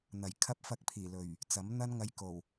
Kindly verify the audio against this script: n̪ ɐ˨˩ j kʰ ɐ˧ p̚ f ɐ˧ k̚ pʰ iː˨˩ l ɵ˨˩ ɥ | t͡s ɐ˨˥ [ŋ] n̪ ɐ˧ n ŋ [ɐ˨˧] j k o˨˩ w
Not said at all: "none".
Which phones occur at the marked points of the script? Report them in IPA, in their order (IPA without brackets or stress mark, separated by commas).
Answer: m, ɐ˨˧